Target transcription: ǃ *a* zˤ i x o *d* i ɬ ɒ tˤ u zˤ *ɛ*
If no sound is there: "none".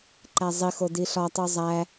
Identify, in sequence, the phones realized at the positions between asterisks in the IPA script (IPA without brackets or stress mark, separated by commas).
æ, d, æ